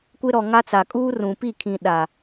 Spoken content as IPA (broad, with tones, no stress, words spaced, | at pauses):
kʷɪ˦ɾɔ˨ŋa˦t͡sa˨ kʼuː˦rũ˨ pi˦˨ kʰĩ˨ ɗa˨